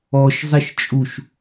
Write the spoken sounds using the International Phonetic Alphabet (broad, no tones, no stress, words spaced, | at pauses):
ɔʃzˤeʃ t͡ʃʼuʃ